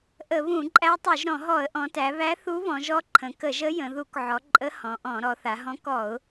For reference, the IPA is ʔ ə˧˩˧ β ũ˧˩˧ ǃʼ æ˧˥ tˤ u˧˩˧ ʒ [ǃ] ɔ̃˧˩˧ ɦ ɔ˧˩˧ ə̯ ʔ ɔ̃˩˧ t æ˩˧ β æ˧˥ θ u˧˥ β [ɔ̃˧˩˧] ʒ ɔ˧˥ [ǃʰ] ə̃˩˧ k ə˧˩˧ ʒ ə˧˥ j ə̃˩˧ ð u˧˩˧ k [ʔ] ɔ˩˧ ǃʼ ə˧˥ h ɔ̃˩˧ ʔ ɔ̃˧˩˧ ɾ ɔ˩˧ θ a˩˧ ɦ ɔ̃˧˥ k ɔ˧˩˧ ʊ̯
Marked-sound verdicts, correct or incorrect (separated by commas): incorrect, incorrect, correct, incorrect